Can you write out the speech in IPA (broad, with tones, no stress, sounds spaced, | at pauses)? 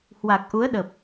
h w a˨˩ k̚ ʔ u˨˦ ə̯ ɗ ə˨˩ p̚